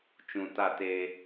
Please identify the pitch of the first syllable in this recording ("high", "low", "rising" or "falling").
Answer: low